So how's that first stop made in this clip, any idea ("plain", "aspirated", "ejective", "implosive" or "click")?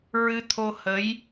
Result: aspirated